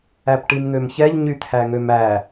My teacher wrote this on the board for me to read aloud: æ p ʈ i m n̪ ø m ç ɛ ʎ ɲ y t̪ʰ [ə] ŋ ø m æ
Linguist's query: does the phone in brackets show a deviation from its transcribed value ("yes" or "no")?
yes